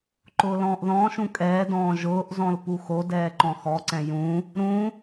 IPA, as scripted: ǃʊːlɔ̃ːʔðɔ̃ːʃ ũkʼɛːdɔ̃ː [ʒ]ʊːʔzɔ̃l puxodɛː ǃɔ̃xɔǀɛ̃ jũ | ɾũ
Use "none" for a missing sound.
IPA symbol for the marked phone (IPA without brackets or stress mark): ʒ